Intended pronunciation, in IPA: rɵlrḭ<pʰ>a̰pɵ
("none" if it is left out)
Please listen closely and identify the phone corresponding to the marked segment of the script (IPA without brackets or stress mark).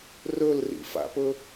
f